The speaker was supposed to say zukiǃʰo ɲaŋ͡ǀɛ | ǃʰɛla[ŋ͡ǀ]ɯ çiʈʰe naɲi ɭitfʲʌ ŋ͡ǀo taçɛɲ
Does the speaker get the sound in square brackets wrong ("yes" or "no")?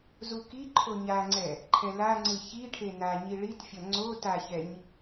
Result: no